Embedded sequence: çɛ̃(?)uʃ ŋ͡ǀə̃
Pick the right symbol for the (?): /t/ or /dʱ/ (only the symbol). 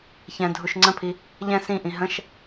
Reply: dʱ